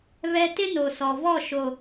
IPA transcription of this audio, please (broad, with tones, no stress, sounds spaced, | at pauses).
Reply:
β ɛ˦ t ɪ˦ n o˨ s ɔ˨ v ɔ˦˨ ʃ o˨